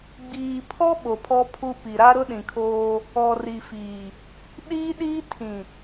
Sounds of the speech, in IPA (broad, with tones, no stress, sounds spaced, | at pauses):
ɡ͡b iː˨ pʰ ɔ˦ ɓ o˨ pʰ ɔ˦ pʰ u˦ p i˨ ɾ a˦ ɾ ʊ˦ ɗ ĩ˨ kʰ oː˦ | ɔ˨ r i˨ f iː˨ | ɗ iː˦ ɗ iː˦ tʰ ĩ˨